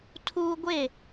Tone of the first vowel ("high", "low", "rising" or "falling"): high